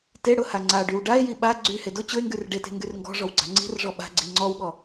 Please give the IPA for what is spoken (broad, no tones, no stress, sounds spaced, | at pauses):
t e ɽ ʊ h a ŋ͡ǀ a ɖ y w ɖ a e̯ j i ɓ a ɡ͡ǀ y h e d ʊ t͡ɕ ʊ e̯ ŋ ɡ y r ɖ e t e̤ ŋ ɡ y r ŋ ɡ ɔ̤ ʐ ɔ w ɡ͡ǀ a̤ ŋ͡ǀ i̤ r ʐ ɔ ɓ a̤ ɡ͡ǀ i ŋ͡ǀ ɔ w ɠ ɔ